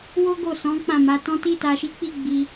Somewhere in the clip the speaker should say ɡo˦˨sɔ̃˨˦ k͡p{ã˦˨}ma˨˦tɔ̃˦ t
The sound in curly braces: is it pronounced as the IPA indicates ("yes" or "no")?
yes